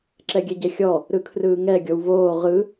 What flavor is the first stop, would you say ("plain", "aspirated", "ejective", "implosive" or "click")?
click